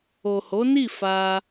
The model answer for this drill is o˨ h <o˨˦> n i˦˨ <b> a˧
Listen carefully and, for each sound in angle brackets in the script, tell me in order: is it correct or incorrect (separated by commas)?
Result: correct, incorrect